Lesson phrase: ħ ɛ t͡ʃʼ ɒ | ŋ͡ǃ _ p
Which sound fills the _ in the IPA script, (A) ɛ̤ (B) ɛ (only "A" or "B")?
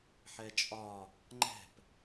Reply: A